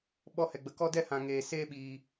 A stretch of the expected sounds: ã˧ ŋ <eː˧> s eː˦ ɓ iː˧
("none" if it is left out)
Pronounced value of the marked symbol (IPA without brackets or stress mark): eː˧